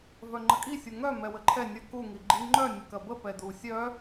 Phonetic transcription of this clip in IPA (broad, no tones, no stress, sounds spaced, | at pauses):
v œ ŋ͡ǃ ə kʼ i sʲ u ŋ œ m ɛ w ə ǃʰ ɛ nʲ ɐ k u ŋ i ɡ͡ǃ i ŋ͡ǃ œ nʲ ə k ɐ b ə p ɛ d u sʲ œ